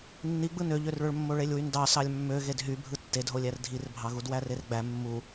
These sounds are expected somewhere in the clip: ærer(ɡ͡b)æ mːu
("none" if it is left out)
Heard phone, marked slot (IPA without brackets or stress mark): ɡ͡b